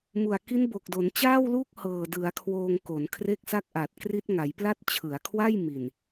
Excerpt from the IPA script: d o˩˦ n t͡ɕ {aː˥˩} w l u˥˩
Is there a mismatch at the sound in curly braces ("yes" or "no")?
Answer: no